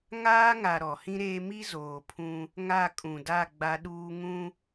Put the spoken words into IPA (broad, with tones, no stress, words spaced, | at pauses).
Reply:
ŋaː˦ŋa˨ ɾɔ˨hĩ˦ɾeː˦ mi˦zoː˨ pʰũ˦ | ŋa˦˨kʼũ˨da˦˨ ɡ͡ba˦ɗuː˦ ŋũ˦